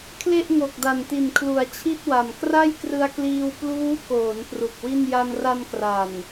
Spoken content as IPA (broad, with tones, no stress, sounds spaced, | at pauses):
kʰ l e˥˩ ʔ ŋ o˨˩ k̚ d a˨˩ n t i˨˩ n kʰ l u˩˦ a̯ t͡ɕʰ i˥˩ t̚ w a˨˩ m k r a˥˩ j k r ɯ˧ a̯ k l iː˧ w p l uː˦˥ k oː˩˦ n p r u˨˩ k̚ w i˥˩ n j a˧ n r a˧ n k r a˨˩ n